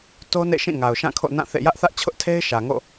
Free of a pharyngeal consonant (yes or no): yes